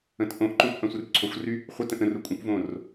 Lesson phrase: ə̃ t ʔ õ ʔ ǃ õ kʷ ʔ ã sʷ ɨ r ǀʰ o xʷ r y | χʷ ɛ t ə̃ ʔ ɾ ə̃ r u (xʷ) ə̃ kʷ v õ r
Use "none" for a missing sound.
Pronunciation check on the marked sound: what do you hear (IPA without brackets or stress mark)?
kʷʼ